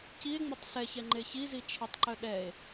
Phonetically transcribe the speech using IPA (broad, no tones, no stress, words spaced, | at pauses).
cie̯ŋ͡mɛtˤ sɛçɛŋ͡ǃe çizi t͡ʃʰətˤǃœ ɗɛe̯